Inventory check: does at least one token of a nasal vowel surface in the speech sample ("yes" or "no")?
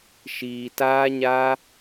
no